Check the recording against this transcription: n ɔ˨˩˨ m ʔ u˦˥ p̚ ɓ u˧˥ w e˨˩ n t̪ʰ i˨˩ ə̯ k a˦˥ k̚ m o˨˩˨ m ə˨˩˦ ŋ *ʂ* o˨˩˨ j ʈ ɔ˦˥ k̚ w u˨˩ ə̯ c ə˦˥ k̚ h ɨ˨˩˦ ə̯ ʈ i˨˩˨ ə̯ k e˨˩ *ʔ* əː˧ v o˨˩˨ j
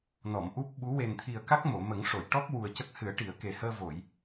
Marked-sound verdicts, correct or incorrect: correct, incorrect: h

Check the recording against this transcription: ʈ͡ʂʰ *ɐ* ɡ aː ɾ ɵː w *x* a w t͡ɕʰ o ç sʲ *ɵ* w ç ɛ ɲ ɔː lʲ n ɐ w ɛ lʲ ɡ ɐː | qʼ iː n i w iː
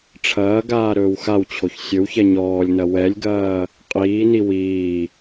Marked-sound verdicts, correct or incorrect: incorrect: ɐː, correct, correct

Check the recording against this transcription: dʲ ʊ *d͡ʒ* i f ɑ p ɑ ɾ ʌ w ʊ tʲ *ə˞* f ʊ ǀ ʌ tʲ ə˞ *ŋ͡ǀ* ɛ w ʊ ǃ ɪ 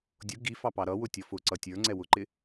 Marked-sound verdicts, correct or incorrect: incorrect: ɡ, incorrect: ʌ, correct

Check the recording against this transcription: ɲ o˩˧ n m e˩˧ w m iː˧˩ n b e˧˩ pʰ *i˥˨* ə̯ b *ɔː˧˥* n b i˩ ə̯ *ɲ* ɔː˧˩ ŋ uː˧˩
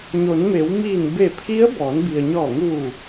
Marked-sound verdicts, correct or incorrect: incorrect: i˧˥, incorrect: ɔː˩˧, correct

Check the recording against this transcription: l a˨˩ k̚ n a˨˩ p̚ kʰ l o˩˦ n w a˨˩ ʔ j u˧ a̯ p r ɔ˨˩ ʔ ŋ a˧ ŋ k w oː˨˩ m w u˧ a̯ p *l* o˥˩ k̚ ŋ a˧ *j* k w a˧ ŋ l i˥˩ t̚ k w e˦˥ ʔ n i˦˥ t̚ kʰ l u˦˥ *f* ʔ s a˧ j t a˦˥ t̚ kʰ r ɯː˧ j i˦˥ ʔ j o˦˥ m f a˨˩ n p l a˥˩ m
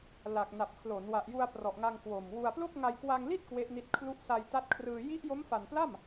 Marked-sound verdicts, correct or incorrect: correct, correct, incorrect: none

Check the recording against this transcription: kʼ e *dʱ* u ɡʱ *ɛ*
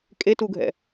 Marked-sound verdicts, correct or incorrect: incorrect: t, incorrect: ɛ̰

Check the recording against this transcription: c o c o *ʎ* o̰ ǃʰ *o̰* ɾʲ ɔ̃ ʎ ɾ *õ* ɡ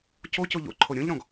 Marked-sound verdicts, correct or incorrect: correct, incorrect: o, incorrect: ɔ̃

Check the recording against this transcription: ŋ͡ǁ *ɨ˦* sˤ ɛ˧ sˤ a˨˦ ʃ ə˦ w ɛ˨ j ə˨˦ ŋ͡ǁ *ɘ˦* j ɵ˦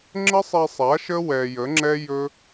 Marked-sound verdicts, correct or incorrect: incorrect: ə˦, incorrect: ɛ˦

